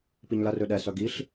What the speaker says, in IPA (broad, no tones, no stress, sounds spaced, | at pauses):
p i ɲ l ɐ r ø ɗ ɛ s œ ɡ i ɬ